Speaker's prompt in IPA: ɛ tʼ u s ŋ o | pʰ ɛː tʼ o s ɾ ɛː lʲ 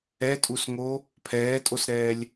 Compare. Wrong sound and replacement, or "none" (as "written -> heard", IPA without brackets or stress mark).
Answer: none